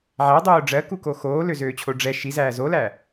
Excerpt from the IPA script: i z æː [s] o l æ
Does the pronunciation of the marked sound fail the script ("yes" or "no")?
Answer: yes